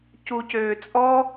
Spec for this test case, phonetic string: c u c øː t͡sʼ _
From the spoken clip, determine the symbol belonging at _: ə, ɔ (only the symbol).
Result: ɔ